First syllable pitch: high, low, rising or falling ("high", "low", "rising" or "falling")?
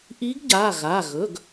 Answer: rising